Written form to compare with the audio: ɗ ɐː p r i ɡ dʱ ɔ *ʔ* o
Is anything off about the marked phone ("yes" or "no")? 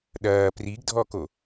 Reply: yes